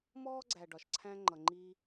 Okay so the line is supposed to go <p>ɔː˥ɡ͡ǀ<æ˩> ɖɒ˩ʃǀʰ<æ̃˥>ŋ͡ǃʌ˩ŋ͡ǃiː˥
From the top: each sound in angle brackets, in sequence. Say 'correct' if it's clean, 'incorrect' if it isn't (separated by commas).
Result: incorrect, correct, correct